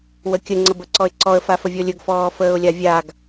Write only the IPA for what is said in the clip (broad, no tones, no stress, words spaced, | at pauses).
wəkʲə ŋ͡ǀəbəǀɔɪ̯ǀɔə̯ fafəvʲɔlʲɵɡ fɔːfəːʊ̯lʲavʲaɡ